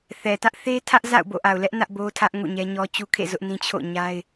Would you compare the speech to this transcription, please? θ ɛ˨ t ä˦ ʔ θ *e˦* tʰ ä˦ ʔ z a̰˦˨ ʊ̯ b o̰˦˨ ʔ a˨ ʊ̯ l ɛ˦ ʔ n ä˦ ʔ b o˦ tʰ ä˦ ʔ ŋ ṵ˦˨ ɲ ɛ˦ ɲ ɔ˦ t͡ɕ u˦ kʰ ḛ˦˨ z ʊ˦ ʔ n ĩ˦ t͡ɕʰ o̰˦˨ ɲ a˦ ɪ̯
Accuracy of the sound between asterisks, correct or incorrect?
correct